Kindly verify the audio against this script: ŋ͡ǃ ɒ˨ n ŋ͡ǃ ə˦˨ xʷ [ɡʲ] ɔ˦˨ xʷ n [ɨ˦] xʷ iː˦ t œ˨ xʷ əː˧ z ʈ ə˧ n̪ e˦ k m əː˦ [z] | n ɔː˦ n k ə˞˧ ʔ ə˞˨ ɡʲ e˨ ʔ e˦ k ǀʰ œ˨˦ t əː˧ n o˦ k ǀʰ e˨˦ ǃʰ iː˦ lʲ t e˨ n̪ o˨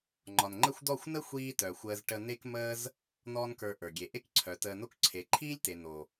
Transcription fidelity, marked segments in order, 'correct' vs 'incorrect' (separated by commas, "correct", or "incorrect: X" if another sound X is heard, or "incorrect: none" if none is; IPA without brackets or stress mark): incorrect: d̪, incorrect: ə˦, correct